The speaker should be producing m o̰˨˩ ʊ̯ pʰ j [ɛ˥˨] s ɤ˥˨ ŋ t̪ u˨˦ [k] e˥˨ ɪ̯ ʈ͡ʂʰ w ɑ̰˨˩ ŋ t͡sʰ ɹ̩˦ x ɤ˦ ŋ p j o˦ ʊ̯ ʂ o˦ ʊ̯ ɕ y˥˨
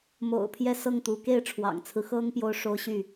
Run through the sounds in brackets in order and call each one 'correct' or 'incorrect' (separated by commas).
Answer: correct, correct